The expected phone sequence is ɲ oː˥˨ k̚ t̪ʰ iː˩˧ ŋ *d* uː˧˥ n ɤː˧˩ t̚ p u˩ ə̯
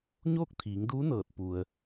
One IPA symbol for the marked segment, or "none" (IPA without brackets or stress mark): d